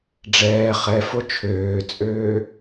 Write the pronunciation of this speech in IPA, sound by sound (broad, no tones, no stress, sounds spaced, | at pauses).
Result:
ɖ͡ʐ ɛː χ ɛ f o t͡ʃʰ øː t͡sʼ øː